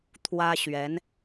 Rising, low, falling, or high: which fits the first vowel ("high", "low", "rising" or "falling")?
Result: high